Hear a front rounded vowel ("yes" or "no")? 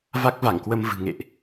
no